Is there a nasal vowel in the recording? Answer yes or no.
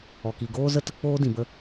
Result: yes